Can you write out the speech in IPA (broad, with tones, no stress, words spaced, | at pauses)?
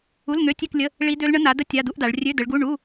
u˧˥˧lŋø˧˥˧tʲø˥˧klʲə˧˥˧ | ɭi˦˥ dø˦˥lɳə˦˥ na˨˦də˦˥ tʲa˧˥˧du˦˥ʔda˨˦ɭ rʲø˧˥˧də˨˦ɭɡu˧˥˧ ɳu˧˥˧